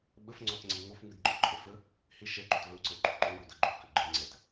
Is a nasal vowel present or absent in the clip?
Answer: absent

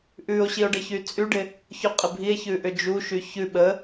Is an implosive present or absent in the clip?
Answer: present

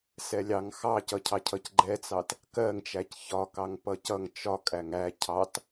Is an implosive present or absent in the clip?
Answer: absent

